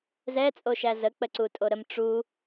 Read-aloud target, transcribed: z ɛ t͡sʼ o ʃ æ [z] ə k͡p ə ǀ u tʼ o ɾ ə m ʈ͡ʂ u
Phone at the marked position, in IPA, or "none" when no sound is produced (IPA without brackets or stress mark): z